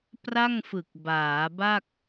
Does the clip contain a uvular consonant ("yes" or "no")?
no